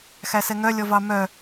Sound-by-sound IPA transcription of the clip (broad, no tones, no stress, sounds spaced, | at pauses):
x æ s ɛ ŋ œ lʲ ɔ v ɑ m œ